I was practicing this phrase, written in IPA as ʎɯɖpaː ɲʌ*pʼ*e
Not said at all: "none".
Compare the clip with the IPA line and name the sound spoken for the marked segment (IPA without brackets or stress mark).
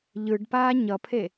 pʰ